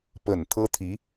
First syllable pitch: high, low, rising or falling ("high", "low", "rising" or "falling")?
low